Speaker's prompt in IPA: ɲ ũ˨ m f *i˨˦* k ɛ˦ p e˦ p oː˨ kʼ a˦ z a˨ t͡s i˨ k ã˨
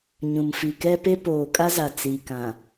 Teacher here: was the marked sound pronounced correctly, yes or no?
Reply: no